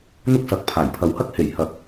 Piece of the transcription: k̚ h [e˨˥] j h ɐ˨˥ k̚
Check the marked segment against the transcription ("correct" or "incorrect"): incorrect